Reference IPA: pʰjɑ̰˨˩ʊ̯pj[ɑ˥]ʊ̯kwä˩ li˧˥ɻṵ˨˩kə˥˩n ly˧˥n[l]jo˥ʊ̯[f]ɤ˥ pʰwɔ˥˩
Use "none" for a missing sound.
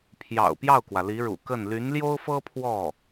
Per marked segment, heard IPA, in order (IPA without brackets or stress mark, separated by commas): ɑ˥˩, l, f